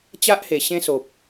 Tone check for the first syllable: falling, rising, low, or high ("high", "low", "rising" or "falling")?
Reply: high